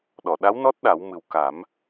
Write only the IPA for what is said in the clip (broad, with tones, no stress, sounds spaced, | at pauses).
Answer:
ɗ ɔ˨˩˨ ɗ a˧˥ w n ɔ˦˥ t̚ ɗ a˨˩˦ w m ɨ˨˩ w k a˨˩˦ m